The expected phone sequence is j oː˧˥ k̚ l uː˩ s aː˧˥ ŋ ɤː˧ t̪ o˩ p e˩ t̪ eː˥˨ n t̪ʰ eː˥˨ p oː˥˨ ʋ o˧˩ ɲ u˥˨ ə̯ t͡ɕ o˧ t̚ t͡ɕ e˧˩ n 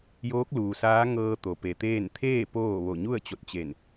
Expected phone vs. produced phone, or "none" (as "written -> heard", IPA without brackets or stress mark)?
none